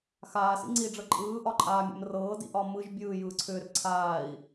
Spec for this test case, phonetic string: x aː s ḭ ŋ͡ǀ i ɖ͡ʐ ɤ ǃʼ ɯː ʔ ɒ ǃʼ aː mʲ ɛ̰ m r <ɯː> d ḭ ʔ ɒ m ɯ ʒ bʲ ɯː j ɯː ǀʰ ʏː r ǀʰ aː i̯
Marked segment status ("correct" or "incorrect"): incorrect